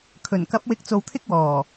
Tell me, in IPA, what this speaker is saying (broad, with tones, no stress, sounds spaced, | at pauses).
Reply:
kʰ ɵ˨˩ n k ɐ˨˥ p̚ w ɪ˨˥ k̚ t͡s o˨ w t̪ʰ ɪ˥ k̚ w ɔː˨˩